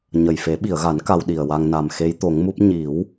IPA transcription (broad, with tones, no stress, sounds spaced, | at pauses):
ɲ ə˨˩ j f e˨˩˦ ɓ i˨˩˨ ə̯ ɣ a˨˩˦ n k a˧ w ɗ i˨˩ ə̯ w a˧ ŋ n a˨˩ m x e˧˥ j t̪ o˨˩˦ ŋ m u˦˥ p̚ ɲ i˨˩˦ w